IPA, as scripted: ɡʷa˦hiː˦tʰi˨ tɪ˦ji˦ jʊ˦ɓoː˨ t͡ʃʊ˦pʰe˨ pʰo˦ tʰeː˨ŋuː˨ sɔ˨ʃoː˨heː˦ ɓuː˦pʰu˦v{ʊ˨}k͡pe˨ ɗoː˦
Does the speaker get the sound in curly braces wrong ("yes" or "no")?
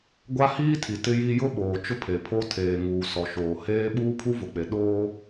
no